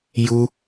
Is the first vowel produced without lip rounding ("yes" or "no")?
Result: no